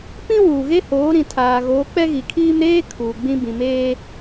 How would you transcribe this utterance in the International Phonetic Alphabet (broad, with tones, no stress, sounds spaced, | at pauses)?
p ĩ˦ w uː˨ ɣ e˦ h oː˨˦ ɾ ĩ˨ tʰ aː˨ ɣ oː˨˦ k͡p ɛ˦ ɣ i˨ kʰ iː˦ m ɾ eː˦ kʰ uː˨ ɡ͡b ĩ˦ b ĩ˨ m eː˦